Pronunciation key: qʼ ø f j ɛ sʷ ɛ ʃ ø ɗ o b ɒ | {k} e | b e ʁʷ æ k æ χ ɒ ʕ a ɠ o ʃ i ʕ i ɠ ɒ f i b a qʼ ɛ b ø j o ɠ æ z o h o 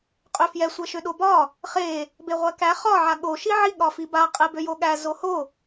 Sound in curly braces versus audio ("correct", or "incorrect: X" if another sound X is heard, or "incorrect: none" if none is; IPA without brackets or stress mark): incorrect: χ